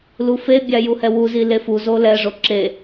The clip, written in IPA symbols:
l u f e bʲ a j u h ɛ w u z i l e f u z o l ɛ ʐ o ǁ e

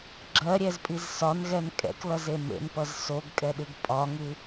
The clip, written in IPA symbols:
ɡ͡ǁ ɜ ɾʲ ɛ z pʼ i z s ɒ n ɣ ɛ n kʼ ɛ̰ k l ʌ z e m ḛ n p ʌ z s o ɡ kʼ ɛ ɗ ɨ ɡ pʼ ɒ ŋ ɨ

